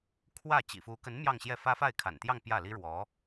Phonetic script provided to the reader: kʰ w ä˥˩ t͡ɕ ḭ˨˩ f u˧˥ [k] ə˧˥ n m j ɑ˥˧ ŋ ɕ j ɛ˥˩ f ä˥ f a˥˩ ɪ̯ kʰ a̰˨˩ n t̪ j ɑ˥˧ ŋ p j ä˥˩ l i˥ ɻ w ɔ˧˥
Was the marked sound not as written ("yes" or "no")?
no